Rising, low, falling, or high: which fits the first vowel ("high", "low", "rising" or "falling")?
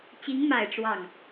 rising